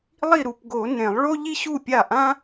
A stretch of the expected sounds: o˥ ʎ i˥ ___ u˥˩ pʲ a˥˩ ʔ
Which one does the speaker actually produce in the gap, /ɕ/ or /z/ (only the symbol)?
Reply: ɕ